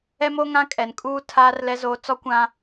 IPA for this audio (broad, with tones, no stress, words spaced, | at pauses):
ɛ˦mo˦ ŋã˦kʼɛ˨nkʼuː˦ tʰaː˦r lɛ˦zoː˦ t͡sɔ˦kʷã˦